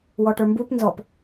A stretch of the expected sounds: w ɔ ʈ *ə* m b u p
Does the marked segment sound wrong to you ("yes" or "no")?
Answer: yes